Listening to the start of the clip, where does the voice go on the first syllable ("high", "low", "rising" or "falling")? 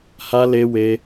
high